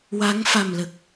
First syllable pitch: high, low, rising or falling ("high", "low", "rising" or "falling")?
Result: rising